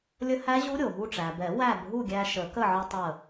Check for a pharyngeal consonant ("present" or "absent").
present